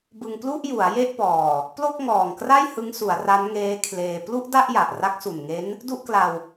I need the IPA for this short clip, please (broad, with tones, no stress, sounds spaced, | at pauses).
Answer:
b ɯ˧ ŋ p l u˥˩ ʔ j u˩˦ a̯ j e˥˩ ʔ p ɔː˨˩ | p l o˥˩ k̚ ŋ ɔː˨˩ ŋ k r a˥˩ j h ɯ˦˥ ŋ s u˩˦ a̯ r a˦˥ n ŋ eː˦˥ kʰ l eː˧ p l u˥˩ ʔ d a˥˩ ʔ j a˨˩ ʔ r a˦˥ k̚ s u˨˩ n ŋ e˦˥ n | d u˥˩ ʔ k l a˧ w